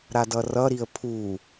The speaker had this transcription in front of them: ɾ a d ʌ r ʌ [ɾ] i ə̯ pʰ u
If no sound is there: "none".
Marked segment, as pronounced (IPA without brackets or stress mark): ɾ